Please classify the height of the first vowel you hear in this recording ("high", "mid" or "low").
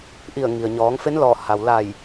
high